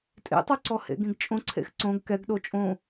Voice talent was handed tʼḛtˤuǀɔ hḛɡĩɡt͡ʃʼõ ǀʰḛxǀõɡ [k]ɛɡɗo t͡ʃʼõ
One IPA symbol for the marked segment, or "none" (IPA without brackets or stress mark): k